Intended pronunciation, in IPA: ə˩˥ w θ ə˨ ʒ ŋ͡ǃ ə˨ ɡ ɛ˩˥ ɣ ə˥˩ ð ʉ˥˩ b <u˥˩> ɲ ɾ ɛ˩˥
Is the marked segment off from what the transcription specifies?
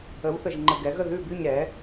yes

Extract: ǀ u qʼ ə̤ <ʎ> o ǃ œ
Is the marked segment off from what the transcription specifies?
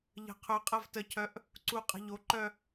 no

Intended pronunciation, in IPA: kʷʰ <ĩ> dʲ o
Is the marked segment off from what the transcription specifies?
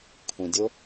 no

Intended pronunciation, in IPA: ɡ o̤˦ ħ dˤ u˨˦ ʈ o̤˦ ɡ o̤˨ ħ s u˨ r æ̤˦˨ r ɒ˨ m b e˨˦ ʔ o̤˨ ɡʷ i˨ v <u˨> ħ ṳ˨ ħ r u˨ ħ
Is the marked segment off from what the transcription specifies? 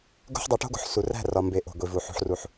no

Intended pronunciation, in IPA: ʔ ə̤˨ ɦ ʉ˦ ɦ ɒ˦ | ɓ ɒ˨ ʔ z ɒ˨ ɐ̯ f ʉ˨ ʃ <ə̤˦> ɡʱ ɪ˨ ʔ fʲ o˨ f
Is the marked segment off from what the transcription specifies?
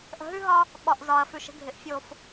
no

